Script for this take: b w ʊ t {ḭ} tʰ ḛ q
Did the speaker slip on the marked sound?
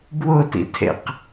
no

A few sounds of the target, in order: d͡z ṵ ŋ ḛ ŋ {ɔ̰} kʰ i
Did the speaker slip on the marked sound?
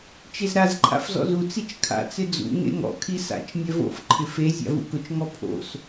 no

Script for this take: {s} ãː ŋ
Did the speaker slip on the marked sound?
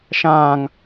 yes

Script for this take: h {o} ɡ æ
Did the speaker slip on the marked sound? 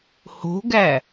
yes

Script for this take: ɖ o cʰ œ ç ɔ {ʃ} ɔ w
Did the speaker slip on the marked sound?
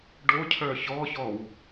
yes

